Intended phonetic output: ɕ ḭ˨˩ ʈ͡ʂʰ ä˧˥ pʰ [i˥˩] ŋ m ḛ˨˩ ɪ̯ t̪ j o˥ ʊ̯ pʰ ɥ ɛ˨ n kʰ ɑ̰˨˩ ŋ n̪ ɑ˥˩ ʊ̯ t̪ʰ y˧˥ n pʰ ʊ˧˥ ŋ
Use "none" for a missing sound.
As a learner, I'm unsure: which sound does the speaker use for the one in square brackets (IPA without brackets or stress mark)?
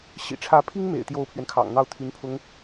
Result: i˥